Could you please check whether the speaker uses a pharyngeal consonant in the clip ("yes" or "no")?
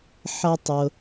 yes